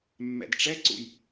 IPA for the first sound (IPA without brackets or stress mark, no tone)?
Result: mː